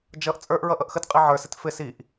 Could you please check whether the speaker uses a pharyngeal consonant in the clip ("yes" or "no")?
yes